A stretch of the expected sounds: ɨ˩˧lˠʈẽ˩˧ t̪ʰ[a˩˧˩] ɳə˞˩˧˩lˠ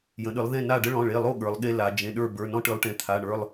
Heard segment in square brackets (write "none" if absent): a˩˧˩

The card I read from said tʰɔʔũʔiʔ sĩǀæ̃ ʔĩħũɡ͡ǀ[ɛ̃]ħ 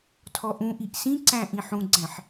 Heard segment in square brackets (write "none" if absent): æ̃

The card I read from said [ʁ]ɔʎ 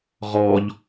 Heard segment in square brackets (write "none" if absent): ʁ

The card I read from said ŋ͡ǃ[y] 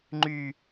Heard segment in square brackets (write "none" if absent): y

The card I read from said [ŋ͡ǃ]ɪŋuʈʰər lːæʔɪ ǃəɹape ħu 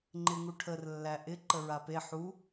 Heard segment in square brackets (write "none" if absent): ŋ͡ǃ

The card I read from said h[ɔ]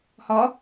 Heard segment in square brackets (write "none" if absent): ɔ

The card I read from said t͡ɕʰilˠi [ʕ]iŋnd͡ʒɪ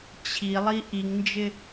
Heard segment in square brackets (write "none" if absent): ʔ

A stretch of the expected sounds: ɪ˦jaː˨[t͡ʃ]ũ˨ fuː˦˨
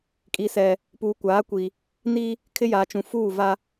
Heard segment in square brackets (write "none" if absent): t͡ʃ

